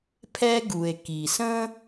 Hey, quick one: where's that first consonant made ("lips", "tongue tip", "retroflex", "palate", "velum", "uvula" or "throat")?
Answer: lips